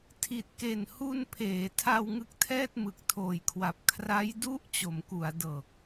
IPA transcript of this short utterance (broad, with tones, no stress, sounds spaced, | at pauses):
tʰ i˨˩ t̚ k e˨˩ n h u˧ n pʰ eː˩˦ tʰ a˧ w ŋ ɯ˦˥ k̚ tʰ ɛː˥˩ t̚ m ɯ˨˩ k̚ tʰ oː˨˩ j kʰ w a˨˩ p̚ kʰ r a˦˥ j d u˦˥ ʔ t͡ɕ o˩˦ m k u˩˦ a̯ d ɤː˨˩ k̚